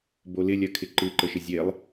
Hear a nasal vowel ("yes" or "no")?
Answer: no